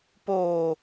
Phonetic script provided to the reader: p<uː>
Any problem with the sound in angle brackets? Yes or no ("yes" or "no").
yes